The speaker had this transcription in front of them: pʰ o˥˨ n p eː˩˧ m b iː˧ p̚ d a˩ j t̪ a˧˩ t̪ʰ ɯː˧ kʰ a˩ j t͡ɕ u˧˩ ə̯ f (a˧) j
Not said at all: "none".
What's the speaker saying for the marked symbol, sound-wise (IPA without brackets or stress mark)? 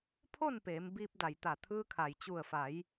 a˩˧